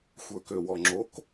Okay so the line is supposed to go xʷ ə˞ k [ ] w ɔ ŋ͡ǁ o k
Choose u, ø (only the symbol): ø